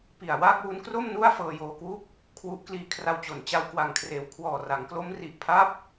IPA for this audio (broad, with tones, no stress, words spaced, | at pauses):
pi˨˩a̯waː˥˩k̚ wu˦˥nkro˥˩m nu˥˩a̯ fɤː˧joː˧kwu˥˩k̚ | kʰwu˦˥ʔkliː˦˥kʰra˧w t͡ɕo˩˦n t͡ɕa˦˥wkwa˨˩ŋkʰreː˨˩w kʰwɔː˨˩ra˩˦ŋklo˦˥m ri˨˩ʔpʰa˥˩p̚